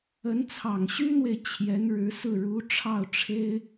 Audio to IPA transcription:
ə˧˥n t͡sʰɑ˨˩ŋɕy˥n̪we˨ɪ̯ t͡ɕʰjɛ˧˥nɻɻ̩˧˥sɹ̩˥˩ ɻu˧˥ ʈ͡ʂʰɑ˥˩ʊ̯ʈ͡ʂʰe˥ɪ̯

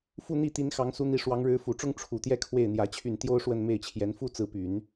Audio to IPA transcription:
fu˥˧n̪i˥˩t̪i˧˥n xɑ˧˥ŋsu˧˥n̪i˧˥ ʂwɑ˧˥ŋɻɻ̩˧˥fu˨˩ʈ͡ʂʊ˥ŋ ʈ͡ʂʰu˨˩t̪jɛ˥˧ kʰwe˥˩ɪ̯n̪jä˧˥t͡ɕʰy˥˩n t̪jo˥ʊ̯ʂwə˥˧n me˥˩ɪ̯t͡ɕʰjɛ˧˥n fu˥t͡sɹ̩˧˥py˨˩˦n

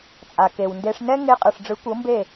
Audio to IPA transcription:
t͡sʼa˨ke˨wnde˧ʂ nɛ˦ŋe˧ qʼɯ˨ʂɖ͡ʐɯ˨˦kʷɤ˨˦mbe˦˨

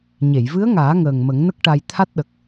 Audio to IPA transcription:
ɲe˨˩˨jvɨ˧˥ə̯ŋaː˨˩˦ŋəː˨˩ŋ mə˨˩˦ŋnə˦˥k̚ʈa˧j t̪ʰa˦˥t̚ɗə˨˩k̚

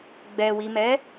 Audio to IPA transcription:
ɡ͡bɛwimɛ

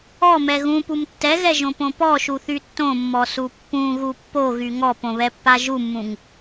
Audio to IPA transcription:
ɔmɛ ɣũpum tːɛɣɛʒõpõ pɔʃuθy tːõmːɔsu pːũɣu pːoɣy ŋɔpõβɛpːa ʒumːũŋ

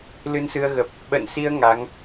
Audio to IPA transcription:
lɨ˧nsɨ˧ə̯ɣə˨˩p̚ | ɓə̰˧˨nsi˧ə̯ ŋa˨˦ŋ

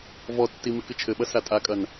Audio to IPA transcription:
vɔtːi mɨkɨt͡ʃʰɘɓɐ satʼakʼɐn

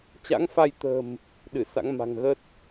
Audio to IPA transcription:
t͡ɕa̰˧˥ŋfa˧j t̪ə̤˨˩m | ɗɨ˧˩sa̰˧˥ŋma̤˨˩ŋ ɣə˦˥t̚

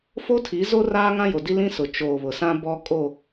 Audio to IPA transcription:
fo˦tʰi˨˦zo˦ raː˦ŋã˦jo˨di˦ lĩ˦sʊ˨ t͡ʃoː˨βʊ˨ sã˦bɔ˦ kʼo˦˨

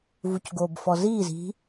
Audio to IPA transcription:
vucɡoːbfɔziːz i̤

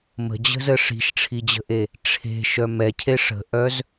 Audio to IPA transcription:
mə̤d͡ʑə̤zə ʂi̤ʃʈ͡ʂʰid͡ʑə̤ʔe | ʈ͡ʂʰe̤ʃœ mɛcʰe ʂə̤ʔœz

